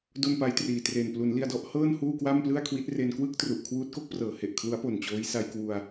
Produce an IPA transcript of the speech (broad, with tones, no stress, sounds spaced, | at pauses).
d o˥˩ n p a˦˥ j t r iː˨˩ t r e˨˩ n p l u˩˦ n l i˧ a̯ d ɔ˦˥ ʔ h ɤː˥˩ n h uː˥˩ k w a˥˩ m p l ɯ˥˩ a̯ kʰ w i˦˥ t̚ r e˧ n k w ɯ˥˩ k̚ t r u˨˩ ʔ kʰ w uː˦˥ t̚ k o˦˥ k̚ p r ɤː˩˦ h e˨˩ ʔ kʰ l u˦˥ a̯ p o˨˩ n t͡ɕ oː˦˥ j s a˧ j k w u˧ a̯